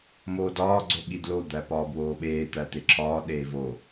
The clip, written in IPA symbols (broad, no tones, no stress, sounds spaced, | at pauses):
m oː d ɒː ɡ͡ǀ o ɠ i d l o d̪ æ p ɒː b w oː ɓ eː t̪ æ t̪ e ǁʰ ɒː ɗ eː v o